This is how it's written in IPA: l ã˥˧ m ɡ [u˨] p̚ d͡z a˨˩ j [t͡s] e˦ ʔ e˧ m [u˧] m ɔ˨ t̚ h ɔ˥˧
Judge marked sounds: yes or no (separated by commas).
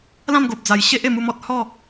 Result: no, no, yes